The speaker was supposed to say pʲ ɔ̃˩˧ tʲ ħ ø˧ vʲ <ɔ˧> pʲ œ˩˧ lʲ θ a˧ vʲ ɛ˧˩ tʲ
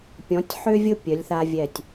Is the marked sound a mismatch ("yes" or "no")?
yes